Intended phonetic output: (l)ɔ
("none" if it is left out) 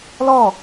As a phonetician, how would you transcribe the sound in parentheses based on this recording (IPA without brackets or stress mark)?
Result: l